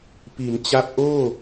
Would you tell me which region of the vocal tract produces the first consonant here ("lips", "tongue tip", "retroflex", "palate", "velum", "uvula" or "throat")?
lips